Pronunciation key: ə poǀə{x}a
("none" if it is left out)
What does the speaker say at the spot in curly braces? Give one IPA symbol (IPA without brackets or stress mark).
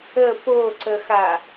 x